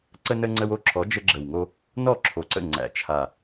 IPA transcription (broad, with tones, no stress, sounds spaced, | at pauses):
ǀ ə˦ n ə˦ ŋ͡ǀ ə˦ w o˥˩ ǁʰ ɔ˨˦ d͡ʒ ə˦ ɡ͡ǁ ə˨˩ w ŋ o˦ | n ɔ˥˩ ǁʰ o˨˩ ǀ ə̰˥˩ ŋ͡ǀ æ̰˨˩ t͡ʃʰ a˨˩